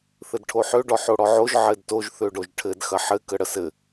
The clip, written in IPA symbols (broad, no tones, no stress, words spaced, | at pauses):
θɘdʈʰoħø ɖɔħoɽɔʕoʒ ʕɘdtoʒ θøɖoʒʈʰɘd xɐħɘ kəɽəsɘ